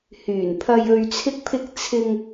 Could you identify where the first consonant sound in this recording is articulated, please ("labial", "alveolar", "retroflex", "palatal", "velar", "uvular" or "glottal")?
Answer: glottal